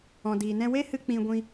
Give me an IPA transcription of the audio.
ɔ̃˨ d iː˨ n ɛ̃˧ w e˦ h ɨ˧ k͡p ĩ˧ ɡʷ ĩ˧

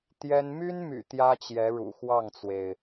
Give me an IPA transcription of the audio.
t̪ j ɛ˥ n m y˥ n m y̰˨˩ t̪ j ä˥ t͡ɕ j ɛ˧˥ ɻ ṵ˨˩ x w ɑ˥˩ ŋ t͡s w e˩ ɪ̯

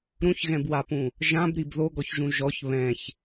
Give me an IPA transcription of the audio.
ɾ ũ ç ɣ ɛ̃ b w a p ũ | ʒ ã b ɾ i b ð o ɡ ɔ ç ʒ ũ ʒ ɔ ç β ɛ̃ ç

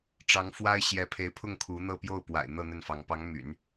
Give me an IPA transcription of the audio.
ʈ͡ʂ ɑ˧˥ ŋ f w a˥ ɪ̯ ɕ j ɛ˧˥ pʰ e˧˥ ɪ̯ pʰ ʊ˥˩ ŋ kʰ u˧˥ n̪ ɤ˥˧ p j o˥˩ ʊ̯ p w a̰˨˩ ɪ̯ n̪ ɤ˥˧ n̪ ə˥˩ n f ɑ˧˥ ŋ p ɑ˧˥ ŋ m y̰˨˩˦ n

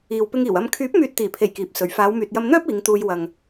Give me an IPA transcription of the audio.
iː˨ w p ɪ˧ ŋ iː˨˩ w ɐ˧ m kʰ yː˨˥ p̚ m yː˨ t̚ t̪ iː˨˩ pʰ e˨˩ j k iː˨ p̚ s ɵ˨˧ ɥ f aː˨˧ w m yː˨ t̚ j ɐ˧ m n̪ œː˥ p̚ iː˨˧ ŋ t̪ uː˧ j w ɐ˨ ŋ

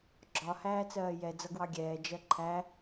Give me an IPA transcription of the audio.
ɡ͡ǁ ɒ h æː t͡s ɜː j ɛ d͡z ʌ ɡ w ɑ ɡʲ ɛː d͡ʒ ɜ ǃʰ æ

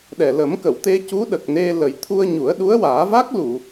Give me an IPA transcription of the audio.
ɗ ɛ˨˩ l ə˨˩˦ m k ə˨˩˨ w t̪ e˧ c u˧˥ ɗ ə˨˩ k̚ n e˧ l ə˨˩ j t̪ʰ u˧ ə̯ ɲ u˨˩˦ ə̯ ɗ u˧˥ ə̯ w aː˨˩˦ v a˦˥ k̚ l u˨˩˨

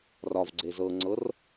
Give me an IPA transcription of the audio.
r ɒ v ɡ͡ǀ e z ɤ ŋ͡ǀ ɤ r

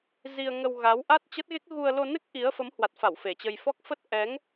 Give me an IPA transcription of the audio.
z i˧ ə̯ ŋ ə˧ w ɣ a˨˦ w ʔ a˦˥ t̚ t͡ɕ ə˦˥ t̚ ɣ e˦˥ k̚ ɣ u˧ ə̯ l o˧ n ɨ˦˥ k̚ ʔ i˨˦ ə̯ f ə˨˦ m h w a˨˩ t̚ f a˧˩ w f e˨˩ t͡ɕ ə˧ j f ɔ˦˥ k̚ f ə˦˥ t̚ ʔ ɛ˨˦ ŋ

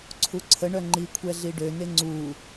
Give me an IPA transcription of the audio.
ǀʰ u ǀʰ ə ɳ œ ŋ͡ǃ i kʷʰ ɛ ɮ i ɖ ø n e ŋ͡ǀ u

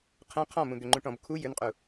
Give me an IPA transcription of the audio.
qʰ ɛ̃ qʰ ɔ̃ m ũ d̪ ʏ ŋ͡ǃ ũ ʈ ɔ̃ b kʰ u j ʏ n qʼ u

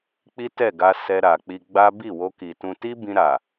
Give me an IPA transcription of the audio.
k͡p i˦ t ɛ˦˨ ɡ a˧ s ɛ˧ ɾ a˨ k͡p i˧ ɡ͡b a˦ b i˦˨ w o˧ k i˨ t ũ˧ t i˦ b ĩ˧ ɾ a˨

